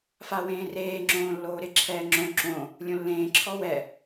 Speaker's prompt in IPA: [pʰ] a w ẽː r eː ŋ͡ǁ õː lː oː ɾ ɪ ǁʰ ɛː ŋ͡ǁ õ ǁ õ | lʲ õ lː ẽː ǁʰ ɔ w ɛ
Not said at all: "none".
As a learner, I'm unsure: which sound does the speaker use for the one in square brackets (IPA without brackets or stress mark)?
f